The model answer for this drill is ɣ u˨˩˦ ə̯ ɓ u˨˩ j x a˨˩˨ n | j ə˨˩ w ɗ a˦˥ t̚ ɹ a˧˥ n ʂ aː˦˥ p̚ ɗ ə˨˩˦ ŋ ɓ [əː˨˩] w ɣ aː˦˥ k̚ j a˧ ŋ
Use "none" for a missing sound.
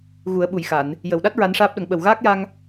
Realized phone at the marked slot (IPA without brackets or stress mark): ə˨˩